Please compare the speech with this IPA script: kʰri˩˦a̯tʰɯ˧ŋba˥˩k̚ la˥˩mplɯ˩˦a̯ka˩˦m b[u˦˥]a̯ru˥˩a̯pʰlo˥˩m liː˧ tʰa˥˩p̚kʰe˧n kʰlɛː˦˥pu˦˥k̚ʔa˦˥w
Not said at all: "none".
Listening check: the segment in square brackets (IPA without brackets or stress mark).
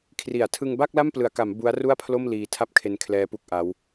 u˦˥